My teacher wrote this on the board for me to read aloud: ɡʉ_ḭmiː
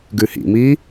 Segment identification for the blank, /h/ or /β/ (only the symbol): h